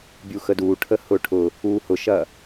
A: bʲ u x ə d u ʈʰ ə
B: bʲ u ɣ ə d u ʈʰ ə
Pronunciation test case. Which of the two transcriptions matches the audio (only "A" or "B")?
A